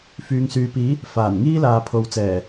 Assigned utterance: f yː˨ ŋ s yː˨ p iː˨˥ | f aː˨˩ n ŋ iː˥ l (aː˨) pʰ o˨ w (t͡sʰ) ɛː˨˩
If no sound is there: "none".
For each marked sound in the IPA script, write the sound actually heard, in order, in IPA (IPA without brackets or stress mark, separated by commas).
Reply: aː˨, t͡s